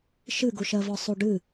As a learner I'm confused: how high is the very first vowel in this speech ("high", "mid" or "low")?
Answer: high